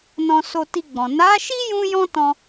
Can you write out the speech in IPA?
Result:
n ɔ̃˧ s o˧ t i˧ ɡ͡b ɔ̃˨ n a˨˦ ʃ i˦ j ũ˦ j ɔ̃˦ t ɔ̃˧

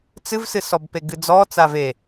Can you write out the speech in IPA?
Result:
t͡s ɨ v s ɨ s ɔ b p e ɡ ɨ d͡z ɔ t͡s a v e

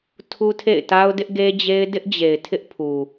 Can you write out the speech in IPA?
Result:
tʰ u˦ tʰ ḛ˦˨ ɪ̯ t a˦ ʊ̯ d ɪ˦ ʔ ɡ e˦ d͡ʑ e˦ ɪ̯ d ɪ˦ ʔ d͡ʑ e˨ ɪ̯ tʰ ɪ˦ ʔ pʰ u˨

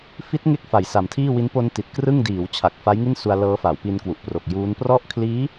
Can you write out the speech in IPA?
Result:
f i˦˥ t̚ ŋ e˦˥ k̚ f a˨˩ j s a˨˩ m tʰ iː˥˩ w i˦˥ n p o˧ n t i˨˩ t̚ k r ɯ˥˩ ŋ d iː˩˦ w t͡ɕʰ a˨˩ k̚ f a˦˥ j ŋ i˥˩ n s u˧ a̯ l ɤː˦˥ f a˩˦ w p i˧ n k w u˨˩ ʔ p r o˨˩ k̚ j uː˦˥ n p r ɔ˦˥ ʔ kʰ l iː˦˥

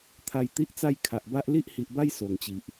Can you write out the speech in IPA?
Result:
t̪ʰ a˧ j t̪ i˦ ʔ t͡s a˥˧ j kʰ a˨ ʔ b a˦ ʔ l i˦ ʔ h i˨ ʔ b a˦ j s o˨˩ ŋ t͡ɕ i˨ ʔ

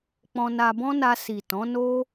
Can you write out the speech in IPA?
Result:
k͡p ɔ̃˧ n a˧ b ɔ̃˦ n a˧ s i˨ t ɔ̃˨˦ n o˦

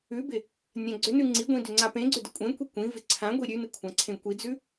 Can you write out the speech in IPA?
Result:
ʉ b ɪ | nʲ ã ɡ͡ǀ ʏ n ʉ ŋ͡ǀ i ɡʷ ĩ d ʏ ŋ͡ǀ a p ẽ ɡ͡ǀ ʏ d ɪ kʷʼ ẽ kʷ i kʷ ĩ v ɪ ǀʰ ã ɡʷ i ɾʲ ʉ n ɪ kʷʰ ã ǀʰ ẽ kʷ i d͡z ʉ

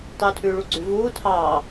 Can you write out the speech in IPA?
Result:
tˤ uː tʰ ʉː ɭ u ɡ͡ǀ ʉ v uː tʰ ɑː

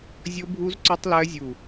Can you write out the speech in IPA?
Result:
zʲ o˦˥ bʱ u˦˥ z ǀ ɵ˦˥ tˤ l ɜ˦˥ zʲ u˧˩

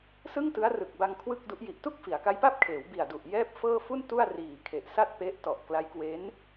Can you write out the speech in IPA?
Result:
s ɯ˥˩ ŋ t ɯ˦˥ a̯ r ɯ˨˩ k̚ b a˧ ŋ kʰ w ɯ˥˩ k̚ d u˦˥ ʔ j i˨˩ ʔ t u˥˩ k̚ f i˩˦ a̯ k a˦˥ j p a˥˩ p̚ kʰ eː˩˦ w b i˨˩ a̯ d u˨˩ ʔ j ɛː˥˩ p̚ f ɤː˥˩ f u˥˩ n t u˥˩ a̯ r iː˨˩ kʰ e˨˩ ʔ s a˥˩ t̚ p e˦˥ ʔ t ɔ˨˩ ʔ k l a˦˥ j k w e˦˥ n

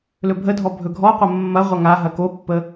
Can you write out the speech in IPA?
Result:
l ɵ bʱ ə dʱ ɔ bʱ ɵ ɡʱ ɔ qʷ ɐ mː ɐ ʁʷ ɐ ŋ a ɦ ɐ k o pː ə

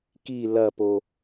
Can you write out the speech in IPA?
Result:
k i l ɐ p o

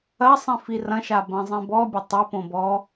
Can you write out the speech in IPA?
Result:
ɐ sˤ ĩ f i r ɐ̃ ʃ a b ɐ̃ zˤ ĩ b ɔ bʲ ɐ tˤ ɘ p õ b ɔ

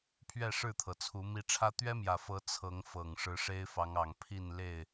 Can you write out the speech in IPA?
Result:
pʰ ɥ ɛ˥˨ ʂ ɻ̩˥˨ t̪ʰ ɤ˩ t͡sʰ u˨˦ m i˨˦ ʈ͡ʂʰ ä˦ t̪ ɥ ɛ˦ m j ä˨˩ f ɤ˨˦ t͡sʰ ɤ˨˦ ŋ f ɤ˨˩ ŋ ʂ ɻ̩˨˦ ʂ e˦ ɪ̯ f ɑ˨˦ ŋ ɑ˨˩ ŋ pʰ i˥˨ n l e˥˨ ɪ̯

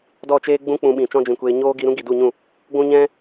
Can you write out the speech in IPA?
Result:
d ɔ˦˨ t͡ʃ eː˦ ɡ͡b ũ˦ k͡p ũ˧ ɓ ĩ˨ t͡ʃ ɔ̃˦ d͡ʒ ĩ˨ kʷ eː˧ ɲ oː˦ ɡ i˧ ɾ ũ˦ ɡ i˨ d u˦˨ ɲ ũ˦˨ | ɡʷ ũ˦ ɲ ɛ̃˦

